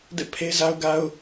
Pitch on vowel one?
falling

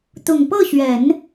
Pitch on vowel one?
low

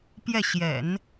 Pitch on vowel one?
falling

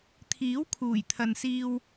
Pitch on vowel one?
rising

